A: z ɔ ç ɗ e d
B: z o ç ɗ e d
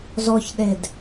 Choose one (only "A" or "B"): A